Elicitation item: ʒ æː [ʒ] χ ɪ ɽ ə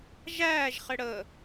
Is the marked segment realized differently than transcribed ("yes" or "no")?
no